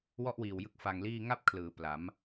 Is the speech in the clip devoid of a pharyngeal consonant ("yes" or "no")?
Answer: yes